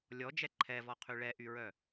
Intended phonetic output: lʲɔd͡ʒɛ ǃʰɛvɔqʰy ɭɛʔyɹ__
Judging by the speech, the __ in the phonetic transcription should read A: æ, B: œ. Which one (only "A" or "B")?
B